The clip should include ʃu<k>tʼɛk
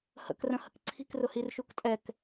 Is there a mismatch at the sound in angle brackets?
no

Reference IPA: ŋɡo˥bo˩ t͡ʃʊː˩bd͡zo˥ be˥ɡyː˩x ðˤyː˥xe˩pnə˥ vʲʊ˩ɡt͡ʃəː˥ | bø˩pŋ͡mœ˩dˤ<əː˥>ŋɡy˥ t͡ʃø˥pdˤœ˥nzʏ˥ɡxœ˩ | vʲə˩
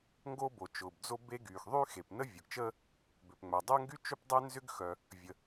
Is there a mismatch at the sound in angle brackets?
yes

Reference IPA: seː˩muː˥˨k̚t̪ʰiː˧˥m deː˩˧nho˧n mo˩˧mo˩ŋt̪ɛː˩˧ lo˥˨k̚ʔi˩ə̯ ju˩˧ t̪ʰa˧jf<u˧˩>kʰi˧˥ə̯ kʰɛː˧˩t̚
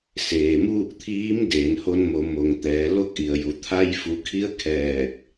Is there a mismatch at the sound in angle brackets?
yes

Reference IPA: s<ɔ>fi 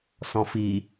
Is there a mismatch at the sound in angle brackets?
yes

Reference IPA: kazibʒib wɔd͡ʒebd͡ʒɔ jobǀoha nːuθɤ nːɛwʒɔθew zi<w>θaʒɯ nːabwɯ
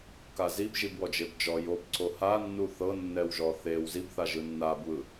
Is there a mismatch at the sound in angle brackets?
yes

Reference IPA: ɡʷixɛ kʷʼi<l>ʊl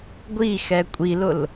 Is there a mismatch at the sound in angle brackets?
no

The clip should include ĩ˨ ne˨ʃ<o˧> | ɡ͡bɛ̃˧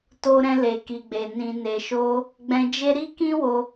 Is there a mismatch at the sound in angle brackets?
no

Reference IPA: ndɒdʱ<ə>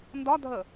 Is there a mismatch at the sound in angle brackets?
no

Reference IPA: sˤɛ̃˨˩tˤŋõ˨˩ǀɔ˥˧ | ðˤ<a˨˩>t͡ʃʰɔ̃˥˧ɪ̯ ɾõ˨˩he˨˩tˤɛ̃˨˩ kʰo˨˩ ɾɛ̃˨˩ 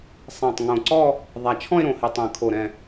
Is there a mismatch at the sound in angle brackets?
no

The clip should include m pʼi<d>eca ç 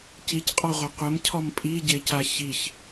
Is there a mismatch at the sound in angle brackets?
yes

